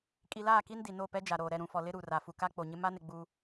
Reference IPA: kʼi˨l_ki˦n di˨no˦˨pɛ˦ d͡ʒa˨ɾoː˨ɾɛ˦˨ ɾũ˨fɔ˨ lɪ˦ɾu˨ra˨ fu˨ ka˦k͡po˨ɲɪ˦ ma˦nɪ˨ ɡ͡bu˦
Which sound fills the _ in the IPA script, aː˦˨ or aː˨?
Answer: aː˦˨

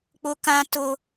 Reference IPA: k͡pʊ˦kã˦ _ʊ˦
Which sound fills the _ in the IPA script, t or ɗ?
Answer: t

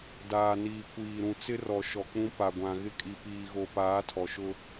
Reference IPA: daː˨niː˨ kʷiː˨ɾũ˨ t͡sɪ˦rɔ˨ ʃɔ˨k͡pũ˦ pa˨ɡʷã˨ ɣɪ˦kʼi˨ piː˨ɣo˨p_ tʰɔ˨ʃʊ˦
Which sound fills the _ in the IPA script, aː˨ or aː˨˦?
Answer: aː˨˦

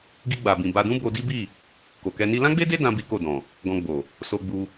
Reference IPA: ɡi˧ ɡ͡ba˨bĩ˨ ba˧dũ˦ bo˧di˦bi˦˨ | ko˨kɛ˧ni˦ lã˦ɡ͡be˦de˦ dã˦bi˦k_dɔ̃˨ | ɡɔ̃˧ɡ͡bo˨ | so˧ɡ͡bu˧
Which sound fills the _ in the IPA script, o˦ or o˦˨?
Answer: o˦˨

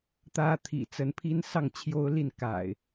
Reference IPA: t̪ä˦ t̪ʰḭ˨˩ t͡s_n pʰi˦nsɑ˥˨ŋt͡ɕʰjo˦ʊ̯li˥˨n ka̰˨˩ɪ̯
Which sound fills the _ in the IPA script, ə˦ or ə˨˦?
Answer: ə˨˦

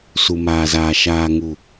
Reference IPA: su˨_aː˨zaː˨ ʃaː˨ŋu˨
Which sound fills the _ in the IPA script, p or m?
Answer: m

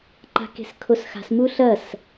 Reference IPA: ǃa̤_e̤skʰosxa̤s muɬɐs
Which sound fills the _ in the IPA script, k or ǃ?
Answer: k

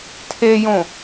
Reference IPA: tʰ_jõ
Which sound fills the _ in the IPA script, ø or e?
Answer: e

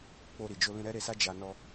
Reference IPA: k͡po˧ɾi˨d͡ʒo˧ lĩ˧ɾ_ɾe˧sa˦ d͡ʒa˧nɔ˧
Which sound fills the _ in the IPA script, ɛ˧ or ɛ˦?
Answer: ɛ˦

